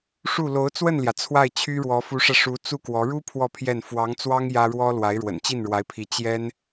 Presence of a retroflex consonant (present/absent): present